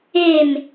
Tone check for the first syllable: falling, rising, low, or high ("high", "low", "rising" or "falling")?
falling